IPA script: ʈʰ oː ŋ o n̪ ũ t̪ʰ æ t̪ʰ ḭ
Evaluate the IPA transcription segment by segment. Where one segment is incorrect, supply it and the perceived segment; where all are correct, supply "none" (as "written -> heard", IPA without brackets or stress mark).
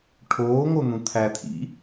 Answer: none